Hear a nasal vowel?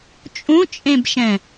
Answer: yes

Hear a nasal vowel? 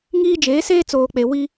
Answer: no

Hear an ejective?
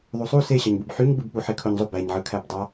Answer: no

